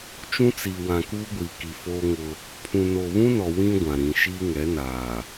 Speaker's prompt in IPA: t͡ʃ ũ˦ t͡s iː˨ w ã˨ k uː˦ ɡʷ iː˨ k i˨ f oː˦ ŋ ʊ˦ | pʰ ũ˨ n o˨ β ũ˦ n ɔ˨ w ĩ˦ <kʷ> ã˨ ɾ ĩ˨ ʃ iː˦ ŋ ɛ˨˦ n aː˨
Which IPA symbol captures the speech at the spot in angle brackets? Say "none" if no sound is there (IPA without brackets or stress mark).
ɡʷ